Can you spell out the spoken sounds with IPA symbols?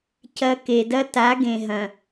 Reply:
cɐ˦ ke˨dɐ˦ta˨˦ ɡẽ˨ɦɐ̃˨

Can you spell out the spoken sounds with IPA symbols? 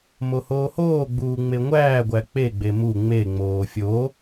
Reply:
mohoːhoːɡ͡buː ŋ͡meŋʷæːɡʷæ k͡peɡ͡be mu ŋ͡meŋ͡moː fʲo

